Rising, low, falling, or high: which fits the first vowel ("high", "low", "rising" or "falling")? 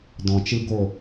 low